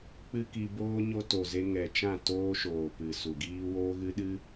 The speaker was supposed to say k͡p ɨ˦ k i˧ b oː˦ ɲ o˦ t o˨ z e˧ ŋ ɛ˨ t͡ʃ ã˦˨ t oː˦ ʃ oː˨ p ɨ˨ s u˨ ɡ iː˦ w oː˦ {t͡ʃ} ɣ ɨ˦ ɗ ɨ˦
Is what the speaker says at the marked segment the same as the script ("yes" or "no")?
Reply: no